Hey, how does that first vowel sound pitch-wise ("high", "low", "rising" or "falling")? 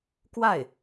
falling